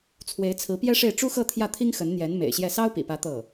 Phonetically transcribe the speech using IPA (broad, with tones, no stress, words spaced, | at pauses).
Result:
t͡sʰwe˧˥ɪ̯t͡sʰɹ̩˧˥pjɛ˥ʂe˥˩ɪ̯ ʈ͡ʂu˥xɤ˥˧t̪ʰjä˥˩t̪ʰi˥ŋ xə˧˥nn̪jɛ˧˥n mḛ˨˩ɪ̯ɕjɛ˥˩ sɑ˥ʊ̯pḭ˨˩pä˧˥ t̪ɤ˥˩